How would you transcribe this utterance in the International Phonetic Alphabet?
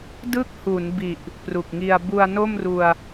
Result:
d ɯ˥˩ k̚ h u˩˦ n b i˨˩ ʔ | p r u˨˩ k̚ ŋ i˧ a̯ b u˧ a̯ n o˥˩ m r u˧ a̯

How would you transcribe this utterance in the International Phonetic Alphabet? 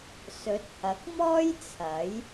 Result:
s ɵ˨˥ t̚ h ɐ˨˥ k̚ m ɔː˥ j t͡sʰ ɐ˨˥ j

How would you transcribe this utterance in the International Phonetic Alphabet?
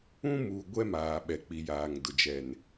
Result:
ũ˦ m uː˨ ɡʷ ɛ˦ m aː˨ ɓ ɛ˨ k͡p i˨ j aː˨ ŋ d ʊ˨ d͡ʒ ɛ˨ n

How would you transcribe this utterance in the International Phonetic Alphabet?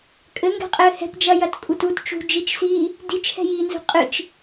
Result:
kʼ ɘ ŋ ɡ ɛ̤ qʼ ɘː h ɛ̤ p d͡ʒ ɐ j ɐ t kʼ u t u t t͡ʃ ṳ d͡ʒ i t͡ʃ s iː | d i t͡ʃ h ɛ̤ j iː n z ṳ qʼ ɨ t͡ʃ

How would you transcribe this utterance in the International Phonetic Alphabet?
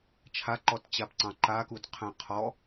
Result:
t͡ʃʰ a ǃ ɔ t t͡ɕ a p ǀ ɑ̃ ǃ a k u d qʰ æ̃ qʰ ɔ

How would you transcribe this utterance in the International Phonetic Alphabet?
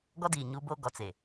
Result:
ɡ ɔ˦ d iː˨ ɲ u˦ b o˦ ɡ ɔ˨ t͡s e˨

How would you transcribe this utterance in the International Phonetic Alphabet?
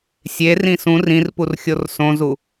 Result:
sʲ e r ĩ s ũ r ĩ r p u r xʲ o r s õ z u

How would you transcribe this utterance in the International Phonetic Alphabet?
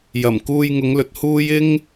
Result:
j ɐ˨˩ m k uː˧ j ŋ ʊ˨˧ ŋ l ɵ˨ t̚ h uː˥ j ɪ˥ ŋ

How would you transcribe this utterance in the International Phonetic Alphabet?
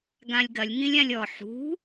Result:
ɡ ã lʲ ɡ ɐ lʲ ŋ ĩ lʲ ã lʲ ɔ ħ ṳ

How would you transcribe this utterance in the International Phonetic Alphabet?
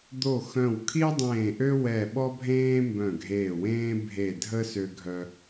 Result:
d̪ o˦˨ x œ̃˦˨ w kʰ i˥ ʊ̯ dˤ ẽː˦˨ ʔ ø˥ w ɛ˦˨ ɓ ɔ˥ bʱ ẽː˥ m b œ̃˦˨ ɡʱ eː˦˨ w ẽː˥ bʱ e˦˨ dʱ ə˥ s ø˥ ɡʱ œ˥

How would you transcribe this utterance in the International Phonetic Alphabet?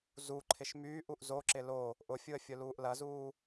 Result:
z u ǃʰ ɪ ʃ m yː ʔ u ʔ z o ǁ ɪ l o | ʔ ʊ fʲ u ə̯ fʲ ʊ l uː ʔ l ɐ z uː

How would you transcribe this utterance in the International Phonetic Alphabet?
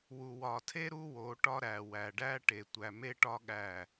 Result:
w u˨ w ɒ˨ tʰ e˦ ɾ u˦ w o˨˦ ʈ ɒ˦ ɾ æ˨ w æ˨ ɖ æ˦ ʈ e˨ tʷ æ˨ m e˦ ʈ ɒ˦ ɠ æ˦˨

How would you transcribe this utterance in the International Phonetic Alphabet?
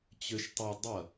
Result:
t͡ɕ ø ʃ tˤ œ dˤ ɐ

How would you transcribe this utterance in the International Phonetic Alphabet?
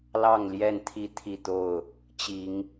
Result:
l ɑ˥˨ ŋ l j ɛ˥˨ n t̪ʰ i˥˨ t̪ʰ i˥˨ t̪ o˥˨ ʊ̯ | t͡ɕ i˨˦ ŋ

